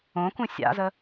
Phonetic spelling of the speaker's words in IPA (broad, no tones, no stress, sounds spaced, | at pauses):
õ k ũ sʲ a̰ z ə